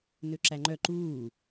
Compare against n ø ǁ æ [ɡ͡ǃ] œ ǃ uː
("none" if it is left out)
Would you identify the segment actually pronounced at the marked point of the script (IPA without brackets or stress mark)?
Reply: ŋ͡ǃ